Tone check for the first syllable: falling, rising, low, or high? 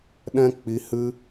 high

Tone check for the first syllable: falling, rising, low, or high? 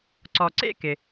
low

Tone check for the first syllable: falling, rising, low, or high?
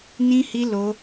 high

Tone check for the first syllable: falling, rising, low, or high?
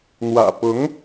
low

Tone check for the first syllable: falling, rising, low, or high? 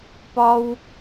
high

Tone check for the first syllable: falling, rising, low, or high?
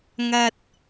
low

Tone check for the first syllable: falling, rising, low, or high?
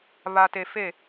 low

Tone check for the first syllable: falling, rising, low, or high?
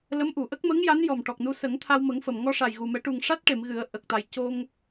rising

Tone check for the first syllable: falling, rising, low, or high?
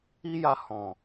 high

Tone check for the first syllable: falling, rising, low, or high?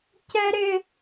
high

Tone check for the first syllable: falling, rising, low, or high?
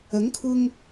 rising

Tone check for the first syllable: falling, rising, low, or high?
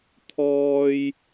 high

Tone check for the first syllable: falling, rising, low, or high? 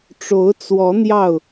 rising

